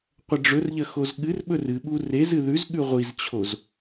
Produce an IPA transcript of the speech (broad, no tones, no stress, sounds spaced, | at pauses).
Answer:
qʷ ɐ ɖ͡ʐ ɵ r ʎ ɐ x o z ɠ ɨ r ɓ ɵ r ɨ ɓ u r e z ɨ ð ʉ z ɠ ʉ ʁʷ i z t͡ɕʰ o z